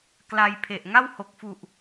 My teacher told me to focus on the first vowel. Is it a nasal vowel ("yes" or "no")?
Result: no